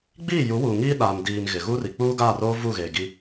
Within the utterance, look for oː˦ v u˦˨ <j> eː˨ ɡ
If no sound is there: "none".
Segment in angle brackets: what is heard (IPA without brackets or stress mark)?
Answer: ɣ